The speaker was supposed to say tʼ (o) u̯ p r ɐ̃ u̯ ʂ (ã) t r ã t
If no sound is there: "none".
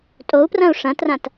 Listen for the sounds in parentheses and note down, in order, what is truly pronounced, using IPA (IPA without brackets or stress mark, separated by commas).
o, ɐ̃